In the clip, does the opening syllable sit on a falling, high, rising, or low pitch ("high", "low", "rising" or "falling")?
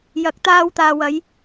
rising